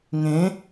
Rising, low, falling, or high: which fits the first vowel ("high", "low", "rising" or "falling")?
rising